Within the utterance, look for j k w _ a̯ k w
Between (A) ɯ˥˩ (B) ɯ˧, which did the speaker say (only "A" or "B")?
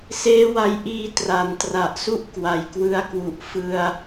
B